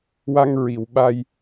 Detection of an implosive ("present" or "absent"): present